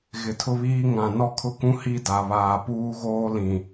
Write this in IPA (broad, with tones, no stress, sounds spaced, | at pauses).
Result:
ɣ ɪ˨ tʰ ʊ˦ β iː˦ ŋ ã˨ n ɔ˦ kʰ ʊ˦ k ũ˦ h i˦ d a˨ β aː˨ p uː˦ ɣ oː˦ l ĩ˨